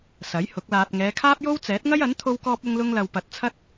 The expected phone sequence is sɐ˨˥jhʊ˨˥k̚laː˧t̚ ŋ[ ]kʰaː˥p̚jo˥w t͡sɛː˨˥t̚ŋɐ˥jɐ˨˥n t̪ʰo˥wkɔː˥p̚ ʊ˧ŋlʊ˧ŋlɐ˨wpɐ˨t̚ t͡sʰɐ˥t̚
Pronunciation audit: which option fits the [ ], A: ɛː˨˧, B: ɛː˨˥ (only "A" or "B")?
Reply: A